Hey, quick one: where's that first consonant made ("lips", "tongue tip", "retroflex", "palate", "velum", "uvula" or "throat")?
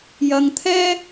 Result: palate